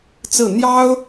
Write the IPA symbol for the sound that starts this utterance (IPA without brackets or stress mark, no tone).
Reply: t͡s